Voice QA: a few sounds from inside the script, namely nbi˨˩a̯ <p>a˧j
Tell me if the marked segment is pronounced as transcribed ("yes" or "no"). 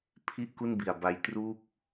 no